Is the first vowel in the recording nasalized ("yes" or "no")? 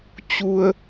no